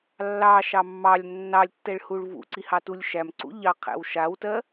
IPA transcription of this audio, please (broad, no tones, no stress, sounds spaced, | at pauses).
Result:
lː ɑ ʃ ɑ mː ɑ lʲ nː ɑ lʲ tː ɛ ɭ h u ɭ v ṵ ǀ i h ɑ t u lʲ ʃ æ m ǀ ṵ ʎ ɑ qʰ æ̰ w ʃ a w t ɜ